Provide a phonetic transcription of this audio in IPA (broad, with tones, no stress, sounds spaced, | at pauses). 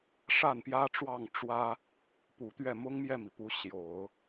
ʂ a˥˩ n p j ä˥ ʈ͡ʂ w ɑ˥˩ ŋ ʈ͡ʂ w ä˥ | p u˨˩ t̪ ɥ ɛ˥˩ m ʊ˥ ŋ m j ɛ˥˩ m i˩ p u˧˥ ɕ j o˨˩˦ ʊ̯